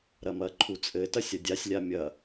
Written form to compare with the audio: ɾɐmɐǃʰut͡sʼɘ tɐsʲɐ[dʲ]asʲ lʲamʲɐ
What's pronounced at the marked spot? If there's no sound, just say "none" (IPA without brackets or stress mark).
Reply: dʲ